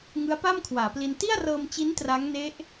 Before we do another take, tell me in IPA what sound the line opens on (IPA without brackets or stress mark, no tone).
ŋ